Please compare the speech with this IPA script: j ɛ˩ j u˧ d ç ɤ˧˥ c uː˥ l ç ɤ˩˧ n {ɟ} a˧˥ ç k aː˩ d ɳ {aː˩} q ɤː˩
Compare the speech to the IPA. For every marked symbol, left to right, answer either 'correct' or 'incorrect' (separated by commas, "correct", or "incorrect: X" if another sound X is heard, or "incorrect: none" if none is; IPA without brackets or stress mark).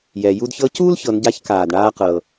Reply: correct, incorrect: aː˧